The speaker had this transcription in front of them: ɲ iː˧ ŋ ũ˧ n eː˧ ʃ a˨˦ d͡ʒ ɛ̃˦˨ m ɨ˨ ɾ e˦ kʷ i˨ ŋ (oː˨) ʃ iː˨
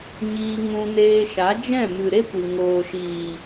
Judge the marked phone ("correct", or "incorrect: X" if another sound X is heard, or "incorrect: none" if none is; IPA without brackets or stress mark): correct